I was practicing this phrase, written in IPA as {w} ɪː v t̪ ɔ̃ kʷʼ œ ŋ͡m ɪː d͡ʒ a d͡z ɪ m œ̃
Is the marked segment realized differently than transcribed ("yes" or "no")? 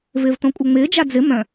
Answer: yes